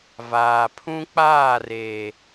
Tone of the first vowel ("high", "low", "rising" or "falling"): low